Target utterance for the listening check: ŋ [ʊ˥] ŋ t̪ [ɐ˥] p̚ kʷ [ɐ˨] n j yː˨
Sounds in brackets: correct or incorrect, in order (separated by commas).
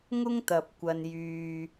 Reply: correct, incorrect, correct